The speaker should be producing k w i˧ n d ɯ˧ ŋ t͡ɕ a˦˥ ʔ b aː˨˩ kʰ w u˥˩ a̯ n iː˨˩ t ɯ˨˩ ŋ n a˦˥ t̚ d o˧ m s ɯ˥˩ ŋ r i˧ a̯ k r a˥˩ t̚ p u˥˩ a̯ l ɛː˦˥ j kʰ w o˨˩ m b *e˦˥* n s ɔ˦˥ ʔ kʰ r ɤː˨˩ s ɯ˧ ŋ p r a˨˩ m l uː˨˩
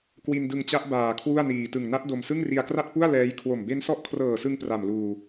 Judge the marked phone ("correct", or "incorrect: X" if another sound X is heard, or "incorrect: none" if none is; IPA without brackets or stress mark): correct